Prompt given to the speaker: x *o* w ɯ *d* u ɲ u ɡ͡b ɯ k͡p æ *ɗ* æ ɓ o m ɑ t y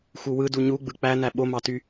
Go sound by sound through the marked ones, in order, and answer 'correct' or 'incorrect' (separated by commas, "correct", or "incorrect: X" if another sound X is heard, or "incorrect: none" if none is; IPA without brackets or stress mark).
incorrect: u, correct, incorrect: n